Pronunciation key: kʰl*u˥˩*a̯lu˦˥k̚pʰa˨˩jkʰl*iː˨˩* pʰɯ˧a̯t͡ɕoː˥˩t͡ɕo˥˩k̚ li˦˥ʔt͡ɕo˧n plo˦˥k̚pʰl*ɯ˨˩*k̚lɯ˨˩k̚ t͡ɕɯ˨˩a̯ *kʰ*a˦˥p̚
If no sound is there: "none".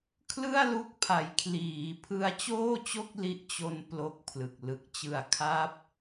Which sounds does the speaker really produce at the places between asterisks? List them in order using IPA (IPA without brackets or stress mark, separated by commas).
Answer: ɯ˥˩, iː˩˦, ɯ˨˩, kʰ